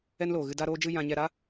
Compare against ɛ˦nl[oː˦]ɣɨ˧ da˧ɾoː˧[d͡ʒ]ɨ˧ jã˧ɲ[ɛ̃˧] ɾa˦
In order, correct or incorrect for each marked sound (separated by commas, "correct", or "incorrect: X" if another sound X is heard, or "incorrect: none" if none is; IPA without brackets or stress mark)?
incorrect: oː˨, correct, incorrect: ɛ˧